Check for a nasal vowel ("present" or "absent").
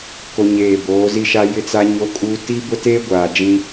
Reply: present